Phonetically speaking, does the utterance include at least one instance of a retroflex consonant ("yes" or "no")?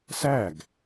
no